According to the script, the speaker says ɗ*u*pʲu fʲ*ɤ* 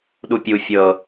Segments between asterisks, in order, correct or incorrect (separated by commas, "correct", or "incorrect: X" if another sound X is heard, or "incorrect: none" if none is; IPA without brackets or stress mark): correct, correct